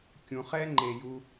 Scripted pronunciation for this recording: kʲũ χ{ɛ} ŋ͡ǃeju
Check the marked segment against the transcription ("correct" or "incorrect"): correct